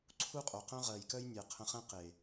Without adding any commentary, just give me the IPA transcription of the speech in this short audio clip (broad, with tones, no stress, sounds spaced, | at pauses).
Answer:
ǀʰ u˦ qʼ o˨ q œ̃˦ ʁ ɜ˨ j k œ˦ j nʲ ɛ˨ qʰ ə̃˧ χ ɛ̃˦ q e˨